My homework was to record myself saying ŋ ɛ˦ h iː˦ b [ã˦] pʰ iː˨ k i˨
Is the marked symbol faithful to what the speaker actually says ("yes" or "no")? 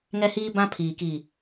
yes